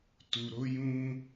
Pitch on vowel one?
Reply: low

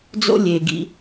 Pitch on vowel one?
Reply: high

